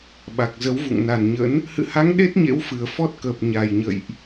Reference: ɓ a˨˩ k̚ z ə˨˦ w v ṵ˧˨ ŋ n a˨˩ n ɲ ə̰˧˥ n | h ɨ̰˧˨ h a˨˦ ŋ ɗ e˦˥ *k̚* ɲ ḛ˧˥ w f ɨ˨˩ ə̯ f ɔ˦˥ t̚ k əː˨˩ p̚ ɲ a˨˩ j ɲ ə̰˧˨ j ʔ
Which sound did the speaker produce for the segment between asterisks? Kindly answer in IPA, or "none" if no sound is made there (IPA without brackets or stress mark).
t̚